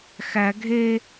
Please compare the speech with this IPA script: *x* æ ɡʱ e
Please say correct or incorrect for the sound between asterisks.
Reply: correct